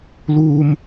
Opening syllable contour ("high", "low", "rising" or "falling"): low